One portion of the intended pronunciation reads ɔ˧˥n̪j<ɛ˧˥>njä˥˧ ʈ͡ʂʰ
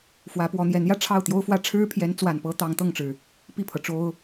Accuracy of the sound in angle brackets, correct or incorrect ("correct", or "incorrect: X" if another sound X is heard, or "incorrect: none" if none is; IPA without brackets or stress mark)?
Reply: correct